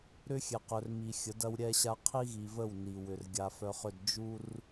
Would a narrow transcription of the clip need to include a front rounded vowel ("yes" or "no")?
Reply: yes